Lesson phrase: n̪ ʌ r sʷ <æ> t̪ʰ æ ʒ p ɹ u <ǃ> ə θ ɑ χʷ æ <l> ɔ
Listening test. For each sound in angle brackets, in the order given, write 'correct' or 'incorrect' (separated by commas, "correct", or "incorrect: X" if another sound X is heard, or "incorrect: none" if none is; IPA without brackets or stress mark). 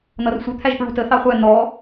incorrect: ə, incorrect: t, incorrect: n̪